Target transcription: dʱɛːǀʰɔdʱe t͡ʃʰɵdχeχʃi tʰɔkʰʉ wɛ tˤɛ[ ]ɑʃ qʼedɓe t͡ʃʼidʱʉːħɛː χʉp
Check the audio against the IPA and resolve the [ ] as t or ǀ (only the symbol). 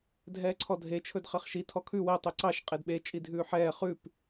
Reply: ǀ